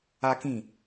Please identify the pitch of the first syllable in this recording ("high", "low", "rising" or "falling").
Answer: high